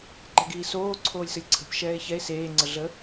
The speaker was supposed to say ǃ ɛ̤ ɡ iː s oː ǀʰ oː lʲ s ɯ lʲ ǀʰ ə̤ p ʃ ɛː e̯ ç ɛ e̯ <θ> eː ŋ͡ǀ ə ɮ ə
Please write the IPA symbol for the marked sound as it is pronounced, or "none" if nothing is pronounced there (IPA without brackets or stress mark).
s